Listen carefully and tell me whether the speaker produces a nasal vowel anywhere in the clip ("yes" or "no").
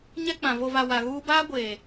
yes